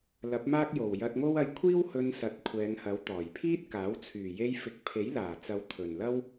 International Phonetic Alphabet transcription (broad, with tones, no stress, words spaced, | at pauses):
lɐ˨˥p̚maː˥k̚jo˨˩w jɐ˧t̚ŋo˥w ɐ˧jkʷʰiː˥whɵ˧nsɐ˨˥t̚ kʷʰɛː˨˧ŋhɐ˨˥w t̪ɔː˨˩jpʰiː˥t̚kaː˨˥w t͡sʰyː˨˩je˧jfɪ˨k̚ pʰe˨˥jlaː˨˩t͡sɐ˨˧w t̪ʰɵ˨˩nlɐ˥w